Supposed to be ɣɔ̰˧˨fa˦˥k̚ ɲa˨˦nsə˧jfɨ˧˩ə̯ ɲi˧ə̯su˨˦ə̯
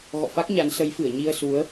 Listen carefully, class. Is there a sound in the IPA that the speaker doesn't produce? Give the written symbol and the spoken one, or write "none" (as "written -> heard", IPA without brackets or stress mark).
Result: ə˧ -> ə˨˦